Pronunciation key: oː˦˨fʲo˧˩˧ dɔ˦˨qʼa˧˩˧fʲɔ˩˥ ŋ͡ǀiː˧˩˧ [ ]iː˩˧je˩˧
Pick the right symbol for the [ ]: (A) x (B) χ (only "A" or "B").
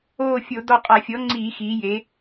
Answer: A